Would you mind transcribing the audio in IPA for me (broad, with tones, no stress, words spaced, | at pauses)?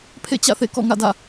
pʰḛ˦˨t͡ɕä̰˦˨θḛ˦˨ kɔ̰˦˨ŋä̰˦˨dä̰˦˨